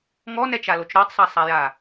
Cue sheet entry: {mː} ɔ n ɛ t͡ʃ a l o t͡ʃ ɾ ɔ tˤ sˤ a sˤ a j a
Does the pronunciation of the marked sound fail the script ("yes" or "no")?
yes